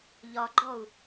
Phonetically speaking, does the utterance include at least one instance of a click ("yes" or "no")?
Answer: yes